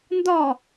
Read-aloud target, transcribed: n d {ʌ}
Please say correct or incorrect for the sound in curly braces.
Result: incorrect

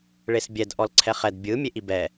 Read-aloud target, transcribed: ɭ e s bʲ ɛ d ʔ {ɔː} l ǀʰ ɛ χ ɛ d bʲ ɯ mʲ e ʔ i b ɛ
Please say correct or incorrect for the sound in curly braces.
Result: incorrect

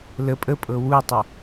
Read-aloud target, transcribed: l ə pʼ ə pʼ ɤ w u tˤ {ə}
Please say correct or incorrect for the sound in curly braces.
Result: correct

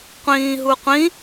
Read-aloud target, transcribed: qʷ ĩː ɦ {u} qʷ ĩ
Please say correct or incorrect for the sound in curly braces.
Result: correct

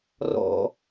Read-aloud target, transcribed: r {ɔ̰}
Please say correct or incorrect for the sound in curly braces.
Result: correct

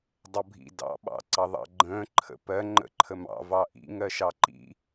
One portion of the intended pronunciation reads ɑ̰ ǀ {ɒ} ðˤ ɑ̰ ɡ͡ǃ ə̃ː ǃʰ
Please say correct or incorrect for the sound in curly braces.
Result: incorrect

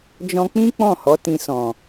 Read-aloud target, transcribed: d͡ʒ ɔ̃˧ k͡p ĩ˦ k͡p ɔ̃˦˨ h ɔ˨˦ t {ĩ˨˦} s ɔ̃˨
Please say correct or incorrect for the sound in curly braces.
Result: incorrect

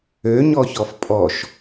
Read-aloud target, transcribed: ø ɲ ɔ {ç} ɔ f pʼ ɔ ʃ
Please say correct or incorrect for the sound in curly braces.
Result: correct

